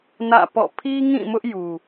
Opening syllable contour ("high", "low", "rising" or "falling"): falling